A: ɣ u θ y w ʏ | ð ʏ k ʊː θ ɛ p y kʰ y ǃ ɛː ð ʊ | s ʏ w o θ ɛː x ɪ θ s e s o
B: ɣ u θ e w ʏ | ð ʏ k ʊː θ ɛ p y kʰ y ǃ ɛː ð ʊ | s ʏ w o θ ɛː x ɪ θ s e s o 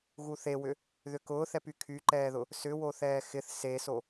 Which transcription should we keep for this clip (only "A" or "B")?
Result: B